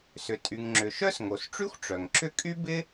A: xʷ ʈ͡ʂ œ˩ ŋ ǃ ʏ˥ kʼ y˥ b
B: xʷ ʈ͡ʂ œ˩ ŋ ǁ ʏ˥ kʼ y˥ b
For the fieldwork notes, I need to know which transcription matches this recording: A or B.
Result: B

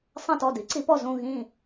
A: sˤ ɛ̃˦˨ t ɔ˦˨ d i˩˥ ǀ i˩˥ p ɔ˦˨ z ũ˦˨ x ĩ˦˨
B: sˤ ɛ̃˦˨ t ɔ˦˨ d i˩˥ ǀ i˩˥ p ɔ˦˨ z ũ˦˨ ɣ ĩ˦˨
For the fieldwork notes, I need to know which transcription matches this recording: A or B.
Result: B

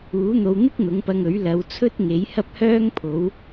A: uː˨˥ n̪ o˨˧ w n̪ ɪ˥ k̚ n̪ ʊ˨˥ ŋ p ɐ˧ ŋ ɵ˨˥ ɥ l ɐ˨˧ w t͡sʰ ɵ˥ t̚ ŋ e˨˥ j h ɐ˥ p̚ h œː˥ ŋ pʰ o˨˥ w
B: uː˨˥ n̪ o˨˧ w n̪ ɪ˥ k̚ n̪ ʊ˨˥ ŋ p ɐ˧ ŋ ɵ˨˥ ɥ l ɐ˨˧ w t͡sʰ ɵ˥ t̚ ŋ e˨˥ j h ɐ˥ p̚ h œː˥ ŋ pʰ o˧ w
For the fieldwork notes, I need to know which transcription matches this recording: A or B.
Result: A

